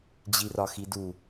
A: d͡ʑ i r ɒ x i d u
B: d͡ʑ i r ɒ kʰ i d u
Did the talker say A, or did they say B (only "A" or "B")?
A